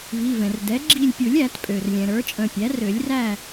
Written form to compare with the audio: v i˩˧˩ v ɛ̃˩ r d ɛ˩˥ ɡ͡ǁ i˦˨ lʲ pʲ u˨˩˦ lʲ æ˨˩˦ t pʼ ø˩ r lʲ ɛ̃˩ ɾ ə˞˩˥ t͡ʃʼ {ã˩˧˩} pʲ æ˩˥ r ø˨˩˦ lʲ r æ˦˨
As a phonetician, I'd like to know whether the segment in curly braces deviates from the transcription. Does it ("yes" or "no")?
yes